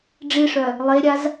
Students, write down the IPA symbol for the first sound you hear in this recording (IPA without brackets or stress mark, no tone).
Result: ɖ͡ʐ